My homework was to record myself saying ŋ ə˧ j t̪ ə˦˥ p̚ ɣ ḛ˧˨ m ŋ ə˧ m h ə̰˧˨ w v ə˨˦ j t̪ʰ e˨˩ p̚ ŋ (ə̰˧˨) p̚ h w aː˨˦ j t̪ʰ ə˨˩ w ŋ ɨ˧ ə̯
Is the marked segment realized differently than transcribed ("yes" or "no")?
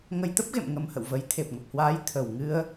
yes